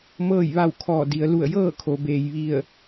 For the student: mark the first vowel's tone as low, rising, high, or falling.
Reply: falling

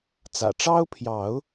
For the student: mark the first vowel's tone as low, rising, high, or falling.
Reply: low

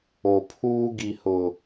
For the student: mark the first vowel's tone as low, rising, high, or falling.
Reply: low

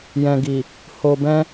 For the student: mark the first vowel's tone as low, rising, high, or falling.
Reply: low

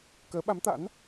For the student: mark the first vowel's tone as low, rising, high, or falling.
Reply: rising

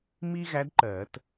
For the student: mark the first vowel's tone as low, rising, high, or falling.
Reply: high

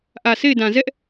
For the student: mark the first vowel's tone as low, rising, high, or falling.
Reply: low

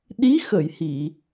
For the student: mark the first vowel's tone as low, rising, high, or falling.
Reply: rising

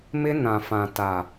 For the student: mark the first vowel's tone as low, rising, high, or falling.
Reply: high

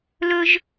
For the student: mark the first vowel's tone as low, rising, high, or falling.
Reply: high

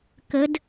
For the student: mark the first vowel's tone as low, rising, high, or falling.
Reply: rising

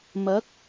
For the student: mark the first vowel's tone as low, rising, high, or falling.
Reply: rising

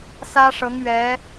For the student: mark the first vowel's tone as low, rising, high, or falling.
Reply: high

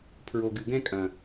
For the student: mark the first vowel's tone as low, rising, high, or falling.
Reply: low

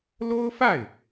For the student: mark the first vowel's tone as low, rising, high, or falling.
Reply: high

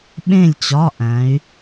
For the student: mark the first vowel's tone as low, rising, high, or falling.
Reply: falling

